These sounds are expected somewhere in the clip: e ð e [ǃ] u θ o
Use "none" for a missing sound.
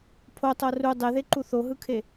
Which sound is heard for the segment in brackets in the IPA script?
ǃ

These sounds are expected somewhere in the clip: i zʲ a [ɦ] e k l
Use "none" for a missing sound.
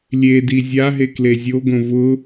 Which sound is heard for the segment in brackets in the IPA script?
ɦ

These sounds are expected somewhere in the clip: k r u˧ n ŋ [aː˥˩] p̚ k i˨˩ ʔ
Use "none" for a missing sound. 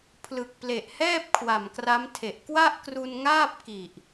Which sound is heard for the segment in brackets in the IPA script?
aː˥˩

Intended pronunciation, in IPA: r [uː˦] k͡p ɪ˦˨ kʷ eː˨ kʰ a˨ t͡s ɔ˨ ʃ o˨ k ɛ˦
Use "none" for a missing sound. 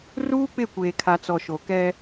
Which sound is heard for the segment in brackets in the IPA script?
uː˦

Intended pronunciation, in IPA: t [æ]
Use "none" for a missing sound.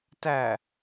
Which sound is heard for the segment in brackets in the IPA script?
æ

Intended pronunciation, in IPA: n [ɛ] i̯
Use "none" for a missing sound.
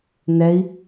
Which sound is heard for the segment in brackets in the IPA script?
ɛ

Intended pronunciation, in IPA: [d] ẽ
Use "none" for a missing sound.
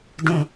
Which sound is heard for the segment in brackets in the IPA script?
d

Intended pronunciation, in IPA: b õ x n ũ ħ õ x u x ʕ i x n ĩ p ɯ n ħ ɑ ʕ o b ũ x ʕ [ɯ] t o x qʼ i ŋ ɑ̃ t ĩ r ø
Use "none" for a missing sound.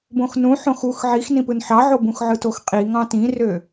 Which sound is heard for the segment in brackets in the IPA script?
ɯ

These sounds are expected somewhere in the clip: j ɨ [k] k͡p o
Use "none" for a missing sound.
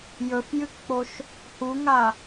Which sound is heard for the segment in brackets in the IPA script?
k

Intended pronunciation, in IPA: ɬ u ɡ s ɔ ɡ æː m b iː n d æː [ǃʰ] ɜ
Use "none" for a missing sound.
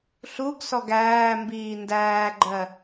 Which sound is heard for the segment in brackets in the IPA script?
ɡ͡ǃ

